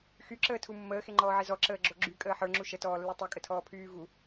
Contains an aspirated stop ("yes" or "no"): yes